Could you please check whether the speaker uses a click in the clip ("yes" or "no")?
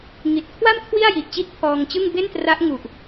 no